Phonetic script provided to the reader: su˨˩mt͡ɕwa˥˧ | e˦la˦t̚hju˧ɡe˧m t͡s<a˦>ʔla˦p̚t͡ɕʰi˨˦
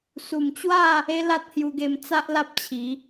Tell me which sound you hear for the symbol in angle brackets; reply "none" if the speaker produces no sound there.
a˦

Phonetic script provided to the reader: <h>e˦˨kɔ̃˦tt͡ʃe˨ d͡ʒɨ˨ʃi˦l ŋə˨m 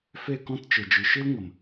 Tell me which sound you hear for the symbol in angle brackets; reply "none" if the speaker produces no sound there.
f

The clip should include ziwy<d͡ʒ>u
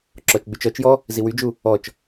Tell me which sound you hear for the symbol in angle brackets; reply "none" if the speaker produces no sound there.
d͡ʒ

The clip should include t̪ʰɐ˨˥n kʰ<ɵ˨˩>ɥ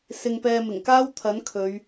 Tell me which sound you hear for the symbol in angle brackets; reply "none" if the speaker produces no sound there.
ɵ˨˧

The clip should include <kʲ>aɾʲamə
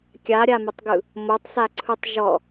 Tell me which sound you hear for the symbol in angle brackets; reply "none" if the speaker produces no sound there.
kʲ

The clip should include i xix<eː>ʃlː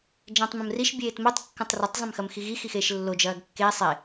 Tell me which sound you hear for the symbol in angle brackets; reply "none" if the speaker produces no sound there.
eː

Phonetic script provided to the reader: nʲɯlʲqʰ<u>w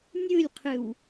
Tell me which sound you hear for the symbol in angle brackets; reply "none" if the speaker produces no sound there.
ɯ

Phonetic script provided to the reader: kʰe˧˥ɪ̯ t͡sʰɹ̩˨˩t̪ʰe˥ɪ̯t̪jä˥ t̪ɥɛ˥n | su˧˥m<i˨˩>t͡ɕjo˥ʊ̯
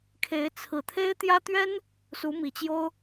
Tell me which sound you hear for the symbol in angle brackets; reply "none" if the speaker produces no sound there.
i˨˩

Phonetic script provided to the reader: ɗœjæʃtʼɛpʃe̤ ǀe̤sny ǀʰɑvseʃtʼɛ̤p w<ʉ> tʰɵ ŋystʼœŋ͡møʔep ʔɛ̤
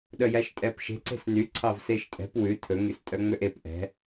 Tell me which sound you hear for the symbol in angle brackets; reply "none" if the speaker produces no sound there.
ʉ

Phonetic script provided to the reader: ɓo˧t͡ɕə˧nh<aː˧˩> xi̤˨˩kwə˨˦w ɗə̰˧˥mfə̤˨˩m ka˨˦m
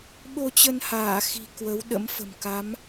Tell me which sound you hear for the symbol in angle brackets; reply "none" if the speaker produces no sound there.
aː˧˩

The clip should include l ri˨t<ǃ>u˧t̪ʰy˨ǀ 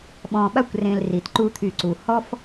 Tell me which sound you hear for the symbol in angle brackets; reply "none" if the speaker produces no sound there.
ǃ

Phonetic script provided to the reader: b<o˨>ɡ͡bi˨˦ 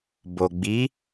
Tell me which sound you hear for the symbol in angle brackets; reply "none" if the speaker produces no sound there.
o˨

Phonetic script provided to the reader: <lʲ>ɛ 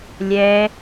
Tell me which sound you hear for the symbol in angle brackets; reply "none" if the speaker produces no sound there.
lʲ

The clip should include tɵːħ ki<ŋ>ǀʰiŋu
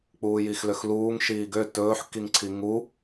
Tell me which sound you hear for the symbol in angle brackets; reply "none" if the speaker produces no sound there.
ŋ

